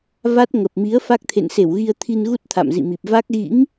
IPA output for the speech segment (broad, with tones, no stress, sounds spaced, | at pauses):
v a˦˥ t̚ ŋ ə˨˩ p̚ m i˨˦ ə̯ f a˦˥ k̚ t̪ʰ ḛ˧˨ n s e˧˩ w ɣ i˧ ə̯ t̪ʰ i˧ n ɣ u˦˥ t̚ t̪ʰ a̰˧˨ m z ḭ˧˨ m i˨˩ p̚ v a˦˥ k̚ ɣ ḭ˧˥ ŋ